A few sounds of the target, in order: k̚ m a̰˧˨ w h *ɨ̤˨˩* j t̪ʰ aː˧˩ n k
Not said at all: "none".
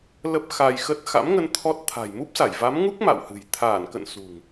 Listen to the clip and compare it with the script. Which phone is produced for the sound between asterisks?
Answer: ɨ̤˨˩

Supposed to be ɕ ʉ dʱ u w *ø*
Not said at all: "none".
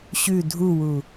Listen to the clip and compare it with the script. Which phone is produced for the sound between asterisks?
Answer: u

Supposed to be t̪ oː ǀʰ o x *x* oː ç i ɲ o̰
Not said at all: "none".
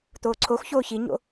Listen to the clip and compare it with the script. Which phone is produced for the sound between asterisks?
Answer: ç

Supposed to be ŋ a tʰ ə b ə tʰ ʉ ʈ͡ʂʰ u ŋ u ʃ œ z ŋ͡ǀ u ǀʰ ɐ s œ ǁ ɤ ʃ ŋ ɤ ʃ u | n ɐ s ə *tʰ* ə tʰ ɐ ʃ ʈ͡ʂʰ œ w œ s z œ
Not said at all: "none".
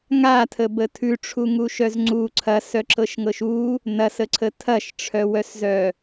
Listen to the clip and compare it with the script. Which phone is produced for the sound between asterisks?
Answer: ǀʰ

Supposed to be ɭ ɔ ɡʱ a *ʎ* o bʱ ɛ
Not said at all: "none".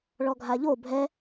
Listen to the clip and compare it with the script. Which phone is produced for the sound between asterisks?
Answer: ʎ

